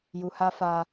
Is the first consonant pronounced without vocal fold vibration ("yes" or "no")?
no